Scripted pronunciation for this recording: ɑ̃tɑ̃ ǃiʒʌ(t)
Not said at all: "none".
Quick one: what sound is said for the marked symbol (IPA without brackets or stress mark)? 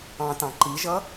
none